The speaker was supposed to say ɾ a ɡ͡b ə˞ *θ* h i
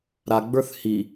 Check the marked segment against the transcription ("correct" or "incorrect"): correct